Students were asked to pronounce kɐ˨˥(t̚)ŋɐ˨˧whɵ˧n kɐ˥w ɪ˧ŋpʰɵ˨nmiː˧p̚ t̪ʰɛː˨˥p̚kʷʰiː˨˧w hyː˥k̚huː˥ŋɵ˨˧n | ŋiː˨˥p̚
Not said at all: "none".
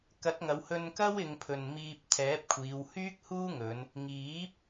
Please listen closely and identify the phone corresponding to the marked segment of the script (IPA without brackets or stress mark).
t̚